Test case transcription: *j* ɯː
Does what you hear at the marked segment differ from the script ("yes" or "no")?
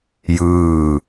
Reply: no